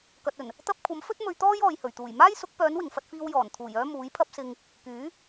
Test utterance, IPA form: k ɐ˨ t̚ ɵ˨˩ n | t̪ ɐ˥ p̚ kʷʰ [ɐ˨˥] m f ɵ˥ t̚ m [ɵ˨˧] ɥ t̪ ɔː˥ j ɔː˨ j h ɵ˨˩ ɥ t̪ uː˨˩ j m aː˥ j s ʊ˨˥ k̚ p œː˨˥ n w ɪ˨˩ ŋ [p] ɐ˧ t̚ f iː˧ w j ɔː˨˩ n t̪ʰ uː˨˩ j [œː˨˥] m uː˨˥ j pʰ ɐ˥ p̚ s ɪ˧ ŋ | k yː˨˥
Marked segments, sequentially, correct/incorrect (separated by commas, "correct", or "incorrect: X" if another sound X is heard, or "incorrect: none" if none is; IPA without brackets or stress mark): correct, incorrect: ɵ˧, incorrect: f, incorrect: œː˥